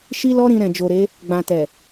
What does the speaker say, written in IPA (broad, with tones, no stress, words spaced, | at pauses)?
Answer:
ʃi˦lɔ˦ ɾĩ˧ɾɛ̃˨d͡ʒo˨ɾe˨˦ | ɡ͡bã˨tɛ˨